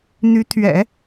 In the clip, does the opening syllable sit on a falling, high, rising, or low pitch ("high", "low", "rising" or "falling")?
rising